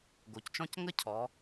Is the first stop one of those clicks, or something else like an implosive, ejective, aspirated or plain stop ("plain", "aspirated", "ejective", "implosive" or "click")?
plain